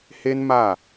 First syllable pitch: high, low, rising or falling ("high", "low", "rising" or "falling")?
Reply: high